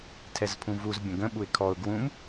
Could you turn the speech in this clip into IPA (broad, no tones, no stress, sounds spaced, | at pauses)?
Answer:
tʰ ɛ z pʰ ũ v u z bʲ ə̃ ɡ ə̃ ɓ u ɪ̯ kʰ ɔ ʊ̯ ɡ w ũ m